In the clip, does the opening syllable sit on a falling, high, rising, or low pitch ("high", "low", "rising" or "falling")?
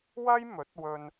high